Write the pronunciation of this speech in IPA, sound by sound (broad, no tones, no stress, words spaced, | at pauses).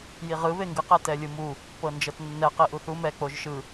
jiʁɯ βeŋɡɯ qɛtɛlʲɯmu | pɤnd͡ʒɤtnːɛ qiʔuθu mɛ k͡poʒʃɯ